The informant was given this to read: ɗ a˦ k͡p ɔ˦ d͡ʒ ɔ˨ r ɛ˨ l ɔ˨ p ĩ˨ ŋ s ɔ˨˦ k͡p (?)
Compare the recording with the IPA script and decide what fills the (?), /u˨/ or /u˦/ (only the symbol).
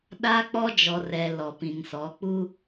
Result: u˦